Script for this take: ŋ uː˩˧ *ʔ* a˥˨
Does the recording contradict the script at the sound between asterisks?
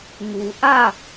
no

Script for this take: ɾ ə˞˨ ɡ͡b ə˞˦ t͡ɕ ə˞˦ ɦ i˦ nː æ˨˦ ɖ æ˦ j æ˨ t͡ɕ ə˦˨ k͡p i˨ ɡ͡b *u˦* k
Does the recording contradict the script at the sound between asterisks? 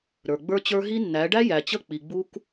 no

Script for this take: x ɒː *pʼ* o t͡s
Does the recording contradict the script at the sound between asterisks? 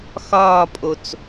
no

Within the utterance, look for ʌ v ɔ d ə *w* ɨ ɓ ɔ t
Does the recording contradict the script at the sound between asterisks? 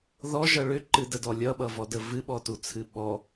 yes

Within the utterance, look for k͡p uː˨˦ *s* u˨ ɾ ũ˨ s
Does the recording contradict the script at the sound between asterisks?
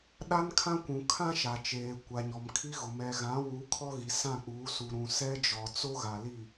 no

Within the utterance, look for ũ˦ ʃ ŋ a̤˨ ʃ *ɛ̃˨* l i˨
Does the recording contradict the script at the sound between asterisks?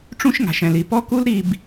no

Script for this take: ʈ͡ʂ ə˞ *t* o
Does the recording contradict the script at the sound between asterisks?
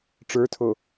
yes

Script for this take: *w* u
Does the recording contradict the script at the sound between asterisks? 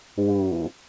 no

